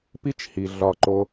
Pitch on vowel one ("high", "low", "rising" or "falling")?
high